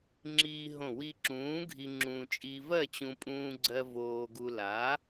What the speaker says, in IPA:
ŋ͡ǁiː˧ɦõ˧˩ wi˧ǁũː˨˥ɡʱi˧ ŋ͡ǁũː˧ t͡ʃʼi˧vɜ˥˨t͡ɕũ˧ pʼũː˧ɡ͡ǀɜ˧ voː˧ɡu˧la˨˥

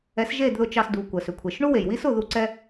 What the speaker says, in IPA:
ɛ˨˦sʒe˦˨dðʊ˧ t͡ʃɑ˧sdu˨ kʷə˨sʏ˨ kʷʰe˨ʃɳu˦we˨j wi˦sʊ˦˨ðu˧ǀɛ˦

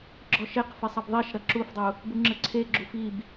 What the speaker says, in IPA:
ɡ͡ǁɔʃeqfe sˤɐbðˤiʃɾɐ ǁufdˤu | buŋ͡ǁɘǀʰeɡ͡ǁu fib

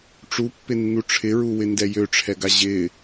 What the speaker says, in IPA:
ʈ͡ʂupːɪnːu ʈ͡ʂʰɪɹuwɪndɛ jøʈ͡ʂʰɛɡa ʑɪ

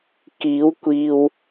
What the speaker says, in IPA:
kiː˨˥wkʷiː˨w

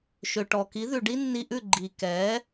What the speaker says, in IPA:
ʃø˩ʈɔ˩ki˩˥ ðʉ˩ɖi˥nːi˧ʔʉ˥˩ ɡ͡ǃi˩ kɛ˩˥

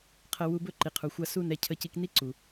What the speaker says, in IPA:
qʰə˧wu˧ bɵ˦ǃi˨qʰu˨ xʷa˧su˦˨n ɛ˧ cʰə˧ci˧kni˦ǀu˨

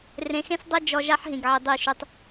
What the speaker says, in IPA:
rẽ˨xẽ˦sdˤe˦ d͡ʒɔ˦ ʒa˦ħɦĩ˨ɡʕi˨ dˤi˦˨ʃʉ˦tˤ

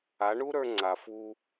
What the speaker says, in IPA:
a˨˦ɳu˦ɾə˞˧ ŋ͡ǀa˨fu˧

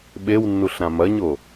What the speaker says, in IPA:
ɓewnːuɬ ɾãmɐɲo

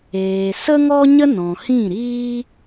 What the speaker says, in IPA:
eː˨ sə˦ŋɔ˦ɲə˦ nɔ̃˨hĩ˦˨ɾiː˦

